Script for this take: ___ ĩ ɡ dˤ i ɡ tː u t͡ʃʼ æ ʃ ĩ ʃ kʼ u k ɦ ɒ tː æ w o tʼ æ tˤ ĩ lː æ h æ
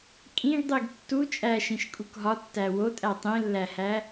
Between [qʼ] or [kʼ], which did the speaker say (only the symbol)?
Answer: kʼ